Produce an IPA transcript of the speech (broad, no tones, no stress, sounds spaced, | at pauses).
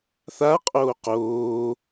θ a qʼ oː q oː